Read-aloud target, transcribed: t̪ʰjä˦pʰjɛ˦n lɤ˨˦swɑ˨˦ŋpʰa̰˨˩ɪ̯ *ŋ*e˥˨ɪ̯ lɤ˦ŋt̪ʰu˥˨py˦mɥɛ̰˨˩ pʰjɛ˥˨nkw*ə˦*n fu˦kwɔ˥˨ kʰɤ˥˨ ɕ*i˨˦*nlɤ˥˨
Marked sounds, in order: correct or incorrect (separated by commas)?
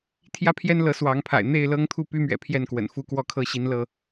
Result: incorrect, incorrect, correct